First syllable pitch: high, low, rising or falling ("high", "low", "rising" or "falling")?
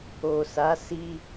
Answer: low